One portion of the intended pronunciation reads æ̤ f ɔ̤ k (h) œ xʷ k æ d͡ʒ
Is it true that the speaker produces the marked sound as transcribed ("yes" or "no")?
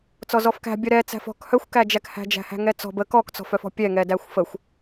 yes